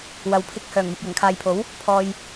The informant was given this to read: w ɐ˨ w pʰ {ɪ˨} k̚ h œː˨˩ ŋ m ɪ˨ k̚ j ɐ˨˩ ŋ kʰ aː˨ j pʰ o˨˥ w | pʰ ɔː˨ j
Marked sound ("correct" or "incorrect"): incorrect